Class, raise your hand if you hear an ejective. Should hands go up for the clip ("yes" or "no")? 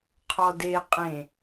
yes